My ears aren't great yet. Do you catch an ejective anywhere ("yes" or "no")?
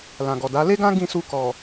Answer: no